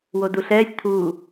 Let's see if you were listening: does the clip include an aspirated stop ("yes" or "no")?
yes